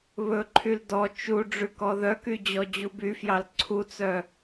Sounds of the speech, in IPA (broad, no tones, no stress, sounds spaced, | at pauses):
β ɵ ǃʰ y l d ɔ t͡ʃ u ɖ͡ʐ ʉ k ɔ ð œ k y d͡ʑ ɔ d͡ʑ u b y f j ɑ l ǀʰ u t͡s œ